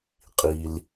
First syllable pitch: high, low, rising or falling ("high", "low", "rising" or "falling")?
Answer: low